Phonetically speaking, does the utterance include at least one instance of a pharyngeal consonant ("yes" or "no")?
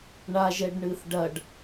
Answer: no